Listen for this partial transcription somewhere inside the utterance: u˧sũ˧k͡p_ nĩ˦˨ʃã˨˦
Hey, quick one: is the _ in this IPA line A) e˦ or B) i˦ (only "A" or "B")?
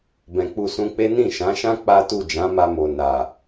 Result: A